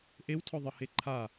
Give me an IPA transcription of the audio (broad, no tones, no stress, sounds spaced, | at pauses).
ʔ e w tʰ ɔ ðˤ ɤ h e ǃʰ a